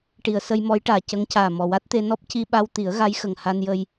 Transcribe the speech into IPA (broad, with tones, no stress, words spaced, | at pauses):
ʈi˨˩˨ə̯sə˧jmɔ˧˥jʈaː˨˩ cə˧˥ŋcaː˨˩ mɔ˨˩wa˦˥t̚t̪e˧ nɔ˦˥p̚ci˧ɓa˧w t̪i˨˩˦ə̯ɣa˧˥jxə˨˩ŋ ha˧njə˧j